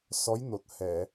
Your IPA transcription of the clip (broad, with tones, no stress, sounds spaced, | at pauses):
s ɔ˧˥ j n o˨˩ t̚ h ɛ˨˩˨